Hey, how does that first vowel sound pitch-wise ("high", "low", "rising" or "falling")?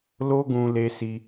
high